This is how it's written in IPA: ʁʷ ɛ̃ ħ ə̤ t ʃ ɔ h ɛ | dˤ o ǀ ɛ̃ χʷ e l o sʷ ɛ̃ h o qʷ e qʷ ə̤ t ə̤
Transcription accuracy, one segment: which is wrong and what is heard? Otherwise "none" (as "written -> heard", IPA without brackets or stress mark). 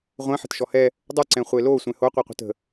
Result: none